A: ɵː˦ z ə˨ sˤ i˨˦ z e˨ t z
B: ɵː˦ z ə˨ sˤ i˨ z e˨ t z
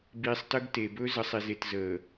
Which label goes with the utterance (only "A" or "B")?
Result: B